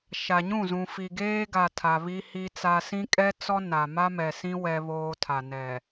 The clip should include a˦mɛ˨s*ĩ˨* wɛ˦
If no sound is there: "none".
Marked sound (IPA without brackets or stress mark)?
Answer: ĩ˦